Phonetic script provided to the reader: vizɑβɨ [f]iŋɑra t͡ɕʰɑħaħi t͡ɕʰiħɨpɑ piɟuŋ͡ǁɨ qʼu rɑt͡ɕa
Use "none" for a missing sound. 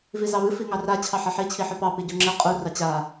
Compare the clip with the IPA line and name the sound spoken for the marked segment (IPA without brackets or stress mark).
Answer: f